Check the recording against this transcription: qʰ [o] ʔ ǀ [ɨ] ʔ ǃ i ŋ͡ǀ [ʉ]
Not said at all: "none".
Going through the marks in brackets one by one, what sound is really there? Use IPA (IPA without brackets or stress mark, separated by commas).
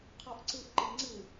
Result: ɔ, ɨ, ɨ